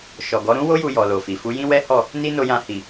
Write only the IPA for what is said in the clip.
ʃ ɔ˨ ɡ ɔ˨˦ ɾ ũ˦ w o˦ j u˧ j ɔ˨ l o˨ f i˨ f u˨˦ j ĩ˦ w ɛ˦ h ɔ˦˨ | n i˦ n o˧ j ã˧ h i˨

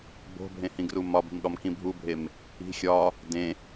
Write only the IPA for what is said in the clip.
b o̤ bʱ ẽ h ĩ ɡ r u m ɒ b i̤ m ɠ ɒ m k ĩ bʱ u bʱ e m | i̤ xʲ ɒ | d ẽ

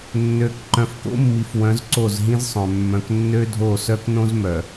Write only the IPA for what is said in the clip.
nː ø˨˦ k ǃ œ̃˨ f k o̰˦ mː i˨ f w œ̃˨˦ z ǀ o˦˨ z ɦ ĩ˦ z sˤ œ̃˨ mː œ̃˨ k nː ø˦ dʱ o˦˨ s œ˦ k n õ˦ z m œ˨

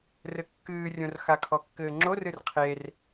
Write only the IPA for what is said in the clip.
r ɘ kː ɨː rʲ õ r x a kʰ ɔ kː ɘː ŋ͡ǁ o r ɨ r qʰ e r

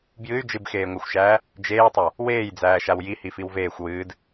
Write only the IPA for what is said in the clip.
b j ɨ y̯ d͡ʒ ɨ b x eː ŋʷ æ xʷ ʃ æː | d͡ʒ eː tˤ a | w eː j d͡z æː ʃ a w j i h i f i w v eː xʷ w ɨː d

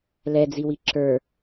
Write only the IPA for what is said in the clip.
l ɛ d͡z i w i ǁ ə˞

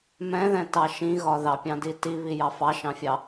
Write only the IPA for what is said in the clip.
m ɛ̃ ð ɛ̃ t ɑ ʃ ĩ ɣ ɒ ð ɑ pʲ ɑ̃ d i t i β i j ɑ f ɑ ʃ ɑ̃ fʲ ɑ

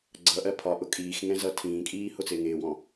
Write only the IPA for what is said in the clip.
ɡ͡ǀ ʌ ʔ ɜ pʰ ɒ ʔ ʊ kʼ iː x ŋ ɛ̃ z ʌ tʰ ĩː kʼ iː h ʊ t͡s ɪː ŋ ɪː w ɔ̃

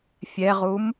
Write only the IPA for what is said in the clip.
fʲ ɛ ʁ u m

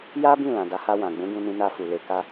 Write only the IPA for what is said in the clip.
j a˦ b ĩ˦˨ l ã˨ d a˨˦ h a˧ w ã˨ ɡ͡b ũ˨˦ ɡ ũ˧ n ĩ˧ n a˧ f u˨ l e˨˦ k a˦

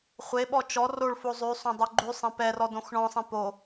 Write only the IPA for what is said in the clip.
χʷ e ɓ ɔ t͡ʃ ɔ r o ɭ f o zˤ ʉ sˤ õ dˤ o ɡ͡ǃ ʉ sˤ ẽ p ɛ r ɔ d õ x ɳ ɔ̃ sˤ ẽ p o

